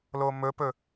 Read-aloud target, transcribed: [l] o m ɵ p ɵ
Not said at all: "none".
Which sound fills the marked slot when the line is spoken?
l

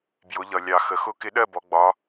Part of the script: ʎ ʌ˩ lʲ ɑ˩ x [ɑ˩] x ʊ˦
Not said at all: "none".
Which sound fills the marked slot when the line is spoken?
ə˩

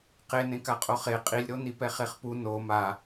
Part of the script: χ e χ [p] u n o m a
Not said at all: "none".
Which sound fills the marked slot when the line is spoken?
p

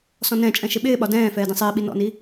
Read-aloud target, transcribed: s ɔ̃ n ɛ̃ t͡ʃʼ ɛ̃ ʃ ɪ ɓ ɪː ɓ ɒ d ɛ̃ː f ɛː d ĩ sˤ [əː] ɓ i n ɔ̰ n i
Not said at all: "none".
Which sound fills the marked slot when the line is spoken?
ɪː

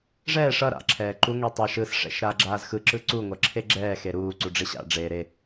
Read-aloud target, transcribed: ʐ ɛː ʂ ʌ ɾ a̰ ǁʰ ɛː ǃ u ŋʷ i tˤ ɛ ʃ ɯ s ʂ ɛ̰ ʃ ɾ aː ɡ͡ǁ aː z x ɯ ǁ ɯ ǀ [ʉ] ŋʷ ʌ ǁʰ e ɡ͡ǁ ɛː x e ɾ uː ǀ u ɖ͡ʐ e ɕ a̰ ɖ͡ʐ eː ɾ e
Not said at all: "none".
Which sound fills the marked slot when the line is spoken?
u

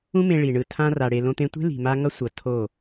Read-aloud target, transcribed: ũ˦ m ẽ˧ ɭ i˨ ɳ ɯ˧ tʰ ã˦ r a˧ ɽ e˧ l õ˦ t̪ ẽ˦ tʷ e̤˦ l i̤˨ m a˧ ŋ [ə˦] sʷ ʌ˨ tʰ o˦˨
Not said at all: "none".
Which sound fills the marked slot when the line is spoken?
ʌ˦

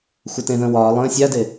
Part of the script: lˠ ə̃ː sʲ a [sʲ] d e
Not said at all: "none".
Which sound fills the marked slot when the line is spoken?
none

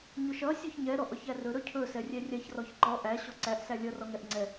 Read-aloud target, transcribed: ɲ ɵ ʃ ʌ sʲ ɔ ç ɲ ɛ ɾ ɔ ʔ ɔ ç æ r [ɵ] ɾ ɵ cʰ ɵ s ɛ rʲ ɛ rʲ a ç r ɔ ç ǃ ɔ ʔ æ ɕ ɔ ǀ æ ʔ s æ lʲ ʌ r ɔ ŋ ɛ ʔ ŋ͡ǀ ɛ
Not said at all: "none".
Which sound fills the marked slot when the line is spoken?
ɵ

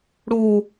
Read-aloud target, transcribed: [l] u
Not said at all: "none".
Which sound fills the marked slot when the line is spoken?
ɽ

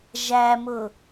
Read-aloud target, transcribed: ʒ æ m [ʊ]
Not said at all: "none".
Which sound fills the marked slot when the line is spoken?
ʊ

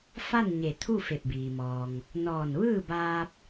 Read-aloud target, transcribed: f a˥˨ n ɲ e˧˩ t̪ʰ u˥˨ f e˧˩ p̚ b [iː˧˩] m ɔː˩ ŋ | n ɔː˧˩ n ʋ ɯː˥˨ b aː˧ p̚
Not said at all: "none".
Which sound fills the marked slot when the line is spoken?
iː˩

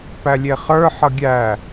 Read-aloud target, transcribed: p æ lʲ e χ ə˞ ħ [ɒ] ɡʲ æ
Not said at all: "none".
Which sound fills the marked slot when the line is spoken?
ʌ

